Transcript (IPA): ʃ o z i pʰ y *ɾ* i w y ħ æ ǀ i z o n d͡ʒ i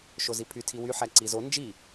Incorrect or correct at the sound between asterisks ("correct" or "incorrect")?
incorrect